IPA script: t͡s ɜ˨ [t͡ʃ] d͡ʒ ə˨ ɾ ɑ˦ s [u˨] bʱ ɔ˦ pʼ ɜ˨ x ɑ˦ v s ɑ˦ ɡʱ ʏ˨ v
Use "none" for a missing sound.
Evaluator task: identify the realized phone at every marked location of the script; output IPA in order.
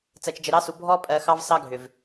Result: t͡ʃ, u˨

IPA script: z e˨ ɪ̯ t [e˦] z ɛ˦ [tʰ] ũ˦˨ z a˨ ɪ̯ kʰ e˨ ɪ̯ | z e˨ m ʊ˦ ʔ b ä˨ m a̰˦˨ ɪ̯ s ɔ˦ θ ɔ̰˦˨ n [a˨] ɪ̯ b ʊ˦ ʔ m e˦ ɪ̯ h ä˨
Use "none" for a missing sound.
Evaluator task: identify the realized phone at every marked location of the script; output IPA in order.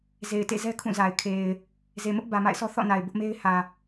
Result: ḛ˦˨, kʰ, a˨

